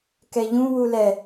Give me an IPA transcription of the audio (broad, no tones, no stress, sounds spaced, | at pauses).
k ɛ ʎ ũ w u l ɛ